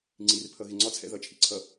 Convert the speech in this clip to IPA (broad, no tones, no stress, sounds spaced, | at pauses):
ŋ͡ǀ i r pʰ ʌ ɣ ɪ ŋ͡ǀ ɒ t͡sʰ ɛ̰ ð ʌ t͡ʃʰ ḭ ǀʰ ʌ